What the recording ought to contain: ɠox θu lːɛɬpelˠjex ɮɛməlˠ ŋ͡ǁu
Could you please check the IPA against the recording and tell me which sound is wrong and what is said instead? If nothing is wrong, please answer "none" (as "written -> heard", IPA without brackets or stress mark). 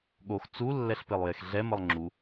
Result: θ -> t͡s